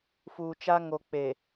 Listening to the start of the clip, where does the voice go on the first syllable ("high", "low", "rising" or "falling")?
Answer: low